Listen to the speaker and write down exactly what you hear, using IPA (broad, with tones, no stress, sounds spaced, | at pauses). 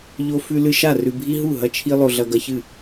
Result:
ʎ o˦ f ʉ˦ l ɨ˦ ʃ a˥˩ r ʉ˦ bʱ i˦ ɦ u˥˩ ɦ ɐ˦ t͡ʃʰ i˦ lˠ o˦ ɮ ɐ˦ ɡ ɐ˦ ç ɨ˥˩